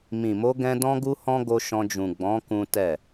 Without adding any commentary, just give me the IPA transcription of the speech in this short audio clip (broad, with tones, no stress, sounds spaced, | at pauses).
m ĩ˨ m o˧ ɡ ɛ̃˦ d ɔ̃˦ ɡ u˦ h ɔ̃˦ ɡ o˧ ʃ ɔ̃˧ d͡ʒ ũ˨ ɡ͡b ɔ̃˨˦ k ũ˦ t ɛ˦˨